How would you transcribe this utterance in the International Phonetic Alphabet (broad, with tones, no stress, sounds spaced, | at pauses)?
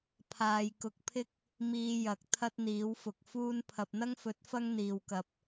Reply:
pʰ aː˨ j k ʊ˨ k̚ pʰ ɪ˥ k̚ | m iː˧ j ɐ˨ k̚ t̪ʰ ɐ˥ t̚ n̪ iː˨˥ w f ʊ˨ k̚ f uː˥ n pʰ ɐ˨ p̚ n̪ ɐ˥ ŋ f ɵ˨˥ t̚ f ɐ˥ ŋ n̪ iː˨ w k ɐ˨ p̚